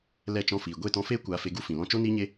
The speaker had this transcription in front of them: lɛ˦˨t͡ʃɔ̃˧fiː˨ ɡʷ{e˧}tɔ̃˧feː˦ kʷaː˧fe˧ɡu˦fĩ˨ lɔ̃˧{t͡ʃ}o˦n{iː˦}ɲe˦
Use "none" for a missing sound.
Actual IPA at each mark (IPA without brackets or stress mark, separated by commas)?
e˦˨, t͡ʃ, iː˦